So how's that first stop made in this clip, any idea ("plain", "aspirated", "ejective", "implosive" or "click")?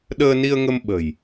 implosive